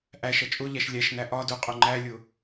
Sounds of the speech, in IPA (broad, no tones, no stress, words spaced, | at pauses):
ʔæʃʌ t͡ʃʼʊʎæʃ lʲæʃnæ ʔɒ dʊqʼʊ ŋ͡ǃælʲʊ